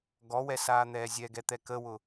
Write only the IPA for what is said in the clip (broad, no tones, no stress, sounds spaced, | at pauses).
ɡ ɔ w ɛ s aː n̪ ɛː zʲ ɛ ɡ ɛ t̪ ɛ k ə w ʊ